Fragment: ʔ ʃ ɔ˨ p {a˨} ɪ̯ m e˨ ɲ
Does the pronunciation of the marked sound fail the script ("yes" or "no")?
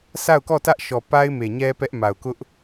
yes